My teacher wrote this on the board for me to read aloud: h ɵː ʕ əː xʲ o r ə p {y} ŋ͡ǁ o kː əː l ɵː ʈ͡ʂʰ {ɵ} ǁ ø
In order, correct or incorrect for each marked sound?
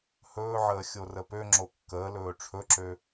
incorrect, correct

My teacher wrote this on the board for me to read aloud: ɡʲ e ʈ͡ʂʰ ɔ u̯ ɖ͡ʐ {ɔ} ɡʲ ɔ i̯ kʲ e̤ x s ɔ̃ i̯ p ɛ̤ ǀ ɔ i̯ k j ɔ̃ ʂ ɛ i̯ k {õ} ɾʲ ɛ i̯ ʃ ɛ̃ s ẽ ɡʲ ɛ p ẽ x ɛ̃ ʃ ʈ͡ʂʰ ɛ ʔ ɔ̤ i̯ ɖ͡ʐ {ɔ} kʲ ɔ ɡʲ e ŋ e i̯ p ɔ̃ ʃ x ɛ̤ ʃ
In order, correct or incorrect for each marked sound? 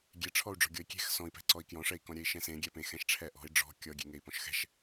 incorrect, incorrect, incorrect

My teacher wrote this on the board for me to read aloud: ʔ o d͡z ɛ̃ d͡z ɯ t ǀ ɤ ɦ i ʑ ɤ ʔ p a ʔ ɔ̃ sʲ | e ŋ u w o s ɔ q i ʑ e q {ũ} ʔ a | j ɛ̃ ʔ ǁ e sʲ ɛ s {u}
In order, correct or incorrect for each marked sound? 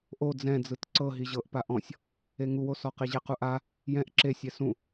incorrect, incorrect

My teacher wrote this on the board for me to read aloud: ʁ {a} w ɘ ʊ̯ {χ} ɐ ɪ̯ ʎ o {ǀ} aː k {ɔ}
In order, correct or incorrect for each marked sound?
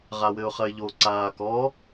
correct, correct, correct, correct

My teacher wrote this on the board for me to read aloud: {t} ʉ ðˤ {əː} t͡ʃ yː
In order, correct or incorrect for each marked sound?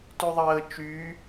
correct, correct

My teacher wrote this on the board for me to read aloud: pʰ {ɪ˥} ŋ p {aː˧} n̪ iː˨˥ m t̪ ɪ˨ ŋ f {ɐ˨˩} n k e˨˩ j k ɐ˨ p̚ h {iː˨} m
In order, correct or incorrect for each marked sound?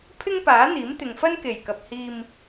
correct, incorrect, incorrect, correct

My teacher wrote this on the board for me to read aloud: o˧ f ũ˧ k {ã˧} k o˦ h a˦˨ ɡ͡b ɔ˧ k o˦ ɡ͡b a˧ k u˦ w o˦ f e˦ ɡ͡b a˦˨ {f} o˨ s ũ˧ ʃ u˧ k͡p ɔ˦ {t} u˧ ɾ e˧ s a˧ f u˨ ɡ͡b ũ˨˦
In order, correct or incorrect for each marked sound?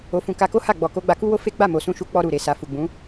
incorrect, incorrect, incorrect

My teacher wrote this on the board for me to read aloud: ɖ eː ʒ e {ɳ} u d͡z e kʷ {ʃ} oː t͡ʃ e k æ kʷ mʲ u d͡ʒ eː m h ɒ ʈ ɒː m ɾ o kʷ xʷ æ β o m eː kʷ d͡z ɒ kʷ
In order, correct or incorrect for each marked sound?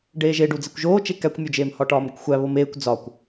incorrect, incorrect

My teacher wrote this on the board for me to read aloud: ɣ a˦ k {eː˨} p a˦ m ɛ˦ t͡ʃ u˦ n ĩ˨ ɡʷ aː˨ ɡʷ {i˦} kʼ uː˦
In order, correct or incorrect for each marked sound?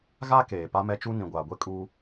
correct, incorrect

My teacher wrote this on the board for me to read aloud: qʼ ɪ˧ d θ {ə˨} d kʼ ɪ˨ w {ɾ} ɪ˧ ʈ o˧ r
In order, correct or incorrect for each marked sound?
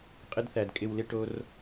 incorrect, incorrect

